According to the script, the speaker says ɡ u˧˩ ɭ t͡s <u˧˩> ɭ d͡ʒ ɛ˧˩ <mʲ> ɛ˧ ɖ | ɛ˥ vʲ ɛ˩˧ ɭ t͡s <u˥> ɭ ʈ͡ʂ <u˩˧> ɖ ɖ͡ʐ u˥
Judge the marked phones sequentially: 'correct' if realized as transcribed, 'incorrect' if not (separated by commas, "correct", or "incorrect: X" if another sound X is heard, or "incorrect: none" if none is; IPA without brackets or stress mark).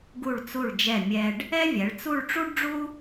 correct, correct, incorrect: u˥˧, incorrect: u˥